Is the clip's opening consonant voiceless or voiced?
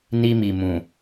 voiced